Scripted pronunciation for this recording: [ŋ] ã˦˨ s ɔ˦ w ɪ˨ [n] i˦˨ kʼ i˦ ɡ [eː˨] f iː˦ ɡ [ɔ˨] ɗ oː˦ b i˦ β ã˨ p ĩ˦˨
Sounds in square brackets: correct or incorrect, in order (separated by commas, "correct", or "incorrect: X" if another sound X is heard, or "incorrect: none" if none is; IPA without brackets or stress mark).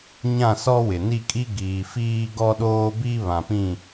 incorrect: ɲ, correct, incorrect: iː˨, incorrect: ɔ˦